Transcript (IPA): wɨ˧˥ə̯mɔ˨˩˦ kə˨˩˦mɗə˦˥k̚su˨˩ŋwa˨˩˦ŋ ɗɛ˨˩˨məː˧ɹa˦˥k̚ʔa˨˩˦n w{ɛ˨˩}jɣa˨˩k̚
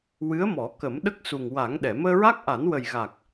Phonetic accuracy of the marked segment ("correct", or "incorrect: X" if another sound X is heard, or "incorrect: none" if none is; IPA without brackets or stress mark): incorrect: ə˨˩